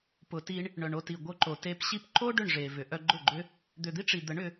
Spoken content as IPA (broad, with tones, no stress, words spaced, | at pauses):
pʊ˨ti˧ɳ | ɳœ˨ɳo˧ti˨ɡʷœ˧ ǃo˨te˧pɕi˦p ǃo˦ ɖʏ˦˨ɳʐe˨vʏ˨ʔœ˧ ɡ͡ǃʊ˦˨ɡ͡ǃʏ˦ | d̪ʏ˨d̪i˦ʈ͡ʂi˨d̪ə˨˦ɳ ʏ˧